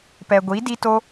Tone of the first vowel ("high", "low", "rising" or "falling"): low